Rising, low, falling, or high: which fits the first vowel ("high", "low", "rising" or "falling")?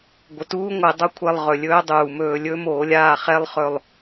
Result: low